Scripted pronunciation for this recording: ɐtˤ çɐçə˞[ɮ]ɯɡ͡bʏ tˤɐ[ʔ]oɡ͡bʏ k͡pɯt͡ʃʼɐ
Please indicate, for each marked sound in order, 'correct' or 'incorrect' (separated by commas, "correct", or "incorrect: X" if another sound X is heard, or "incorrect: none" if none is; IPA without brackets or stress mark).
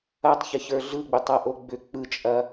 correct, correct